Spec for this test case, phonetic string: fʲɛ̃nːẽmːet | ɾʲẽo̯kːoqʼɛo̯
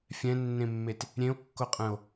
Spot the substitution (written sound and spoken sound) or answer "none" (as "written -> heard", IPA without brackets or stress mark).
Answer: ɛ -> ɛ̃